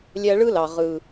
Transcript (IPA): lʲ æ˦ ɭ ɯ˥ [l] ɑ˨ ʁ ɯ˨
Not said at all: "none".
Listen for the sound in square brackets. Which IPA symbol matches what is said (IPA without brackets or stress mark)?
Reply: l